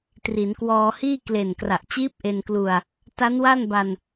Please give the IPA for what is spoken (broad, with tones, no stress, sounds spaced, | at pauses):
t r i˩˦ n k w ɔː˧ h iː˥˩ k l e˨˩ n k r a˨˩ ʔ t͡ɕ iː˦˥ p̚ ʔ e˧ n k l u˧ a̯ | t a˦˥ n w a˥˩ n b a˧ n